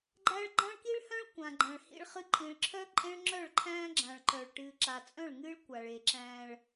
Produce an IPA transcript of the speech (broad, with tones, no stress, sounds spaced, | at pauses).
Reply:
ɡ͡ǃ æ˦ ɭ ɡ͡ǃ ã˦ ɭ k i˦ ɭ h œ̃˦ ɭ kʷ ã˨ ɡ͡ǃ ã˨ ɭ h ḭ˦ ɭ χ ɨ˦ ǃʼ ĩ˨ ɭ ǁʰ œ˦ ǃʼ ẽ˦ ɭ ŋ͡ǁ œ˦˨ ɭ ǃʰ æ̃ː˦ ɡ͡ǁ ã˨ ɭ ǃ œ˨ ɭ ʈ ɨː˨ ǁ a˨ t͡sʼ œ̃˦˨ ɭ ŋ ɨː˦ ɭ kʷ a˨ ɭ e˨ ǁ æ̃˦ ɭ